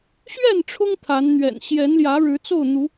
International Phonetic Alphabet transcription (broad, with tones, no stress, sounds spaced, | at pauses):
ɕ ɥ ɛ˥˨ n ʈ͡ʂʰ ʊ˦ ŋ t̪ʰ a˨˦ n n̪ ɥ ɛ̰˨˩ n ɕ j ɛ˨˦ n l j ä˨˦ ɻ ɻ̩˨˦ t͡s o˥˨ ʊ̯ n̪ u˨˦